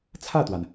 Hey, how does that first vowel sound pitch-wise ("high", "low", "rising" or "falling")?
falling